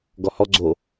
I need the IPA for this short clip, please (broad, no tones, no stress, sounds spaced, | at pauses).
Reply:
ɡ ɔ h ɔ ɡ͡ǀ o